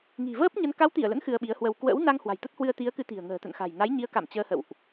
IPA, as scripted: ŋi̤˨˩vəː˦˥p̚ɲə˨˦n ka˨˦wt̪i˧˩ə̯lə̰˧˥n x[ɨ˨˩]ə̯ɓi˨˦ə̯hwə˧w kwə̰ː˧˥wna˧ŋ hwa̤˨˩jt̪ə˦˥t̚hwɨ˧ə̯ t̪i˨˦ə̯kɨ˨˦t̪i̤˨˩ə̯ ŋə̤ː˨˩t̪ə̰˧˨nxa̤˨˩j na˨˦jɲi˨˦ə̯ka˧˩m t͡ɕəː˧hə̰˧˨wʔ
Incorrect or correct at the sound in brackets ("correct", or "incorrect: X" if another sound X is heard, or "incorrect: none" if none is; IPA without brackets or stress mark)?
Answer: incorrect: ɨ˧